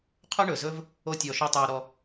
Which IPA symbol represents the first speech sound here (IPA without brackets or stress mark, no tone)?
qʰ